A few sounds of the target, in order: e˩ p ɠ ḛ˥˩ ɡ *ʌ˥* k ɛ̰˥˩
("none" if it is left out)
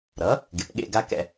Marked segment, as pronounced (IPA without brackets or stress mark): a˥